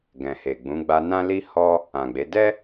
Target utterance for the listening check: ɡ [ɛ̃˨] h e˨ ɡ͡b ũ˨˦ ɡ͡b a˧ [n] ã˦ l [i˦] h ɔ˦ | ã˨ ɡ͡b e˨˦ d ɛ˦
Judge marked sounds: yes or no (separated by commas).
yes, yes, yes